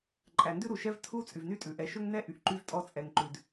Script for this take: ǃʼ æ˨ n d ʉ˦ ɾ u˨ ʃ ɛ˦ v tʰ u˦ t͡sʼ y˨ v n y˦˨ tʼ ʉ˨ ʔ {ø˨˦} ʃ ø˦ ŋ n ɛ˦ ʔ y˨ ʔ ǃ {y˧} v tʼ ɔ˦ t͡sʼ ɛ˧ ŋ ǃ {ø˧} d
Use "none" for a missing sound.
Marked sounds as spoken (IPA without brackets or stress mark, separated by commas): ɛ˨˦, y˦, ʉ˧